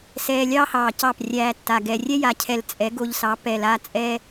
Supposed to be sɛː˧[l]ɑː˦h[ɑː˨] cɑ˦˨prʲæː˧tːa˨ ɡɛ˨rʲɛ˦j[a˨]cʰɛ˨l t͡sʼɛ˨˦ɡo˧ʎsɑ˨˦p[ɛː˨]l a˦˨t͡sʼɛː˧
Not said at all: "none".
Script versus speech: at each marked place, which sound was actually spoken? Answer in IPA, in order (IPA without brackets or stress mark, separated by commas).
lʲ, ɑː˨, a˨, ɛ˨